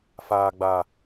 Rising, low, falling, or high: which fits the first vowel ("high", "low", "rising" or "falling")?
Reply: low